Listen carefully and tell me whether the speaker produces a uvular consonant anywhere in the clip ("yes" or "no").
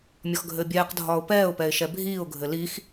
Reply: yes